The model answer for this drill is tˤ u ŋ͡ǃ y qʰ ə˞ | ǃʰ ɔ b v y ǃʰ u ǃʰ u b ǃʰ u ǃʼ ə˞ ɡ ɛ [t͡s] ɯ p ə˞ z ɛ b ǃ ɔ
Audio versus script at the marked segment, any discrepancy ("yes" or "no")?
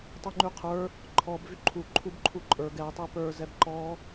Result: yes